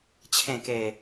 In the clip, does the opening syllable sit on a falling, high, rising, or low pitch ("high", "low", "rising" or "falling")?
low